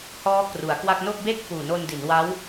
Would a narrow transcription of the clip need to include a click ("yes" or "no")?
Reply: no